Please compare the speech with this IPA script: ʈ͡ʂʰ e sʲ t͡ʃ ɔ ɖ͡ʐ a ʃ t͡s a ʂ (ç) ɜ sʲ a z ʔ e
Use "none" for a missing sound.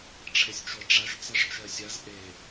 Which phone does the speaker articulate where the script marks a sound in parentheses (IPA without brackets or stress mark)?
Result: t͡ʃ